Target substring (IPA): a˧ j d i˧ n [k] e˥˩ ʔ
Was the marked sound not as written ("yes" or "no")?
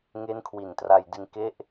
no